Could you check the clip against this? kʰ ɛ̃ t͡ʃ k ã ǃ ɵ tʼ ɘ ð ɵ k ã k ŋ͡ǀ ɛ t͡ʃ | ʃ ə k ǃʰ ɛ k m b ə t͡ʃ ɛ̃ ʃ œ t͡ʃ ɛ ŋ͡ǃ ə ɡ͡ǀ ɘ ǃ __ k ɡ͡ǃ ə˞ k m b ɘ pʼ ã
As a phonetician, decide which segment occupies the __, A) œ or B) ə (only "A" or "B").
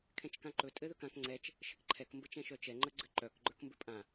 A